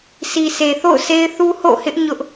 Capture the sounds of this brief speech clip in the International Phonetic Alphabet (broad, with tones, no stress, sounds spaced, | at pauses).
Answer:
sʰ i˨ s e˨ θ o̰˦˨ ʊ̯ s e˦ ɪ̯ θ u˦ h o̰˦˨ h ɪ˦ ʔ ɲ ʊ˦ ʔ